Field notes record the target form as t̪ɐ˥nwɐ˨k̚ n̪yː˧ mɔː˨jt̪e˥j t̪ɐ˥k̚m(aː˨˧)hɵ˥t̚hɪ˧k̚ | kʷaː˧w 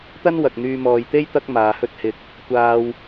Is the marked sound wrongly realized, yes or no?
no